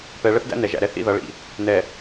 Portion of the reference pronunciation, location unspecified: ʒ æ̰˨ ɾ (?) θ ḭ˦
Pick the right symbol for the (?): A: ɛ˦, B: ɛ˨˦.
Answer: A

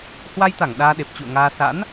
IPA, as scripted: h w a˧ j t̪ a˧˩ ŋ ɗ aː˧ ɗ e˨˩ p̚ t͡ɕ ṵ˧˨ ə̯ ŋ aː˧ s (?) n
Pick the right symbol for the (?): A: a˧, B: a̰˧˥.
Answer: B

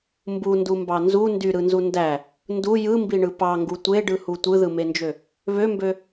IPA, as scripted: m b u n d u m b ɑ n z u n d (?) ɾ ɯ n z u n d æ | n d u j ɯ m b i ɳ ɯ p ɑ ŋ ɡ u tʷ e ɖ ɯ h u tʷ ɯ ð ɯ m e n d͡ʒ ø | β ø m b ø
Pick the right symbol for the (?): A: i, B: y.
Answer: B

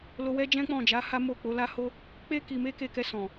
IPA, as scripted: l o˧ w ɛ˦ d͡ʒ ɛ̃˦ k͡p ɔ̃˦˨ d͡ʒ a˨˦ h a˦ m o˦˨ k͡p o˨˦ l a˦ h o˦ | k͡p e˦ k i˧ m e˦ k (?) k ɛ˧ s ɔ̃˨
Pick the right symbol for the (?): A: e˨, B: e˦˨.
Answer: B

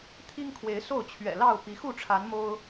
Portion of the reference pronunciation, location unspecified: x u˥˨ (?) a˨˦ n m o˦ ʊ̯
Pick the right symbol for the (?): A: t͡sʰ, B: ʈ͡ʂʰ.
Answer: B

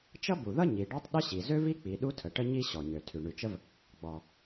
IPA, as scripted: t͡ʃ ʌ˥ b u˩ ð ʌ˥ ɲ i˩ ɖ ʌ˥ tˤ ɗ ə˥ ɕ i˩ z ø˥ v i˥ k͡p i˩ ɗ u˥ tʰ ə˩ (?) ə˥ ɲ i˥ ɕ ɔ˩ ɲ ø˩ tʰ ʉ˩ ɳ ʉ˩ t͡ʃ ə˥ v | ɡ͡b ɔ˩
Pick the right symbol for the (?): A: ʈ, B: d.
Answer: A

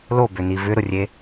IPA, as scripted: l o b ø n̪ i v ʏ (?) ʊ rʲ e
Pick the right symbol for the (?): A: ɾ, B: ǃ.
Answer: A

